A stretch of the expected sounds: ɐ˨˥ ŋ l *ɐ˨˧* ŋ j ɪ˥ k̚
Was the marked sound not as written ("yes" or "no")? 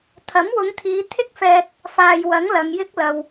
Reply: no